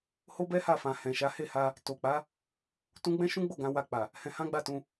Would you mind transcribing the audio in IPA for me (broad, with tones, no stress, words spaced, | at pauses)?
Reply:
ho˦bɛ˦ ha˦˨fã˨hɛ̃˨ʃa˨˦ he˦˨ha˧ | to˨k͡pa˨˦ | tũ˦ ɡ͡bɛ̃˦ʃũ˦ɡ͡bo˦˨ ɡã˧wa˧k͡pa˨ | hɛ̃˧hã˦ɡ͡ba˦˨tũ˧